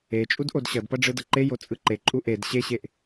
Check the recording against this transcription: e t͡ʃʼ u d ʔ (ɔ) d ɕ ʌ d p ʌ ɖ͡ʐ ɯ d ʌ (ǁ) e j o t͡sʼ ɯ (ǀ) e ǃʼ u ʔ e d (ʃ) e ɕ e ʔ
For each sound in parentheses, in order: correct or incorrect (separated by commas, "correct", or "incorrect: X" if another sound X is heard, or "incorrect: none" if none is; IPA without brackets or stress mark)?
incorrect: o, incorrect: ǃ, incorrect: ǃ, incorrect: ɕ